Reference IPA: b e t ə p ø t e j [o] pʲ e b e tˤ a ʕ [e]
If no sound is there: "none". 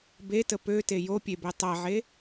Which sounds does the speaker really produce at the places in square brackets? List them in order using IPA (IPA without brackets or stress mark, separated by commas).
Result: o, e